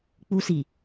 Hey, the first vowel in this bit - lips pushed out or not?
yes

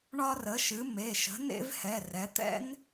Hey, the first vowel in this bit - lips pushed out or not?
yes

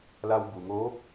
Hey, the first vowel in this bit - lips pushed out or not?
no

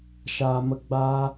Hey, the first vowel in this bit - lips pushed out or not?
no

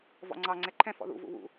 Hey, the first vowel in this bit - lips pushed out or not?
yes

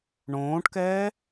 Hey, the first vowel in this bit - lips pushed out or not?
yes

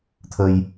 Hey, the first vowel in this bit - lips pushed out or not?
no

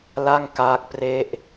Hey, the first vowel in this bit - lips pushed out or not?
no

